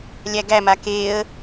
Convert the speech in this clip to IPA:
lʲ æ ɡ æ m a k e ə̯

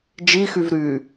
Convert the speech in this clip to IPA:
d͡ʒ i x y v ɾ y

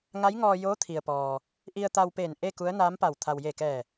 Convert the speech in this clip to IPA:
ŋ a˧˥ j ŋ ɔː˧ j oː˧˥ t̪ʰ i˩ ə̯ p ɔː˩ | ʔ i˧ ə̯ t̪ a˧ w p eː˧˩ n ʔ e˥˨ k u˧˥ ə̯ n aː˧˥ m p a˧˩ w t̪ʰ a˩ w j e˧˩ k ɛː˧˩

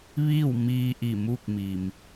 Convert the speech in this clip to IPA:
ʋ iː˥˨ w m iː˧ ʔ i˧˩ m u˥˨ k̚ m i˩ m

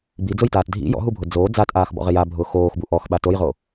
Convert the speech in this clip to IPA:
b i d͡z ʊ j t aː t dʱ ḭ j ɔ̰ ɦ u bʱ ʊ d͡z oː d͡z a t ʔ aː x b ɔ̰ ʁ ɪ j a bʱ ʊː x oː x b u ʔ ɔ x ɓ a t o j ʁ o

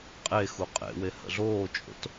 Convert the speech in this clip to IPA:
qʼ e x u qʼ ḛ w e h ə̰ ɮ oː t͡ʃʼ o̰ t

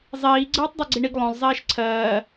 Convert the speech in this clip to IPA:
zˤ iː ɡ͡ǀ ɜː tˤ dˤ a ɡ͡ǀ i ɳ i ɡ lˠ õ lˠ zˤ iː ʃ ǀʰ ɜː

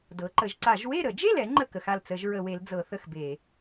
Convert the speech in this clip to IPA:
d ɤ˩˧ ǃ ə˩˧ ʒ ǀ a˧˩˧ ʒ w e˥˨ ɾ ə˧˩˧ d͡ʒ e˥˨ l ɛ˩˧ ŋ͡ǃ ə˥˨ k ə˩˧ x a˥˨ l t͡s ə˧˩˧ ʒ ɹ ə˧˩˧ w e˩˧ l d͡z ɤ˧˩˧ θ ə˥˨ x b e˧˩˧

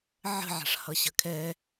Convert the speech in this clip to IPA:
ʕ ə̤ ʕ a̤ ʂ h ʌ ɕ ə kʰ ɛ

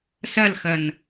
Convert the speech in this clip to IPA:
s ɐ l x ɐ n

